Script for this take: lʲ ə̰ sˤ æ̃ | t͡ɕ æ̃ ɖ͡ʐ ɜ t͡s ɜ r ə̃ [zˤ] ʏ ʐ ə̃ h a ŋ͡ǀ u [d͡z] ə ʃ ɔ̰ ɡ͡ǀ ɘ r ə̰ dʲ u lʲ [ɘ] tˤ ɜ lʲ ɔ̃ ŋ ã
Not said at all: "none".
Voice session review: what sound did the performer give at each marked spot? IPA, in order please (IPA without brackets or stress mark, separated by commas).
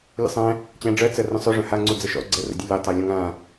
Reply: sˤ, d͡z, ɘ